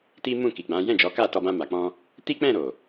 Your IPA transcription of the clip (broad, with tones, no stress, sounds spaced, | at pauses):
t i˦ m ũ˦˨ k i˨ ɡ͡b ã˨˦ j ɛ̃˦˨ d͡ʒ ɔ˨˦ k a˦˨ t ɔ˧ b ã˧ m a˨ k͡p ɔ̃˧ | t i˦ k͡p ɛ̃˦˨ ɾ o˨